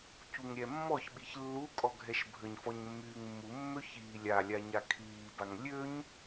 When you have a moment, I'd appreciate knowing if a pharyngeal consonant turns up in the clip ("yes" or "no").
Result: no